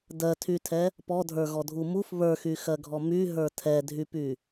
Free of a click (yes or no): yes